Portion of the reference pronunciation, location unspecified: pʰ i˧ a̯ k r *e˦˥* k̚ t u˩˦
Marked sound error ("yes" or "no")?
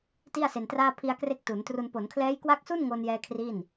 no